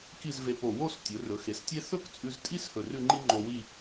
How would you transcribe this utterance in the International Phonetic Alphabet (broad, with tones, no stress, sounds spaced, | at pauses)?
k i˥˧ z v e˧ p o˧˩ w o˥˧ s tʲ ɵ˩˧ r ɵ˩˧ x e˩˧ s tʲ e˥ θ ɵ˥ k t͡sʼ ʉ˧ z tʼ i˥ s h ɵ˧˩ r ʉ˥˧ ŋ͡ǃ i˥ ŋ͡ǃ o˧ w i˥˧